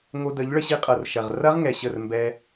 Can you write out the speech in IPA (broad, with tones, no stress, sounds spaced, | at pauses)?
ŋ o˧ d ə˨˦ ʎ ɭ ə˧ ɕ i˧ qʼ ɤ˨ r ʃ ɐ˨ ʁ r ɐ˦ ʁ ŋ ɛ˨ ɕ ə˦˨ r m b ɛ˧